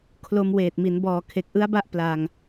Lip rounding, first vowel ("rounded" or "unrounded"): rounded